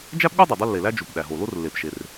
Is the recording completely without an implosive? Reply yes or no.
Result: no